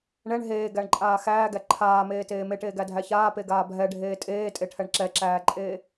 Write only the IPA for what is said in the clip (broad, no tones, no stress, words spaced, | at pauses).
ɳɛɳ ɦeːɡæɳǃʼaː xæːɡæ ǃʰaːmeːteː meʈeːɡædʱæ çaːpeɡaː bʱɛɖʱeː tʼeːtʼeʈʰɛɳ ǁɛǁæːǃʼeː